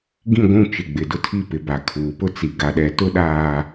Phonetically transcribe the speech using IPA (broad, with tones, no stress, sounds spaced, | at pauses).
ɡ ĩ˦˨ ɡʷ ũ˦˨ t͡ʃ ɪ˨ ɡ͡b ɪ˨ d ʊ˦ tʰ i˦˨ p ɪ˨ b a˨ kʰ uː˨ p ʊ˦ t͡s i˨ ɡ a˨ ɗ ɛ˨ t ʊ˦ ɗ aː˨